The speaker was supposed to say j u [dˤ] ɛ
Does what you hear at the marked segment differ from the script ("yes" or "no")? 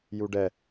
yes